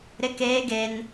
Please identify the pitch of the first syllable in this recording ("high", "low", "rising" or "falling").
high